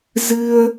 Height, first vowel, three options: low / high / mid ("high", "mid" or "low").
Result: high